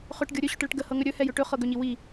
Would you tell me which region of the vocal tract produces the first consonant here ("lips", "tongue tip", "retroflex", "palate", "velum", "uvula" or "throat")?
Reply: uvula